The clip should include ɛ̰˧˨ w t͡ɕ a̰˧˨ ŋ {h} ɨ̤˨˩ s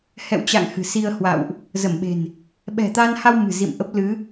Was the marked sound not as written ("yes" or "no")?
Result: no